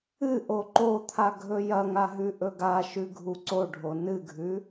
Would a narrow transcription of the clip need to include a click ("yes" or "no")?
yes